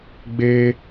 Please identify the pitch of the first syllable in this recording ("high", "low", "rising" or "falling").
high